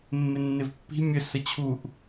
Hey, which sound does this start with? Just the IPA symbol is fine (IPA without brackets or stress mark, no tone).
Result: mː